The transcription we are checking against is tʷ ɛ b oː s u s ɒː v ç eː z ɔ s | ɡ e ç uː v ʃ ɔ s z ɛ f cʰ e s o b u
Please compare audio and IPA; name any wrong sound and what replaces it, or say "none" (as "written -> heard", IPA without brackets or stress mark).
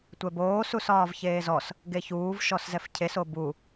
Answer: none